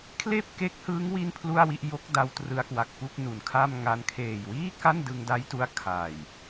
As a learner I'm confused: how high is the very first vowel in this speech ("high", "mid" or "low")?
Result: mid